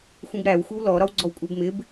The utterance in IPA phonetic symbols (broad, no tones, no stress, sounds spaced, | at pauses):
xʷ ĩ b ɾ æ w xʷ ɪ w l ɔ ɾ ɒ w ɡ͡ǀ ɔ w kʷʼ ɜ b m ɪ b